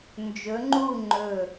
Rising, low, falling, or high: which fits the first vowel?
rising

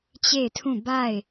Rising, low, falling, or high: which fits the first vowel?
falling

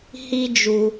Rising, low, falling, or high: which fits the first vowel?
high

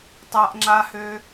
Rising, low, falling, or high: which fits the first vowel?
high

